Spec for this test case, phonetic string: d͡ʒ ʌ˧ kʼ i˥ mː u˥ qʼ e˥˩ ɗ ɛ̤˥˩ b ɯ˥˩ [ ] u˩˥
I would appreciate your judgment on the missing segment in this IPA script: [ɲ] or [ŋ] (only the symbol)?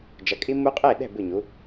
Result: ɲ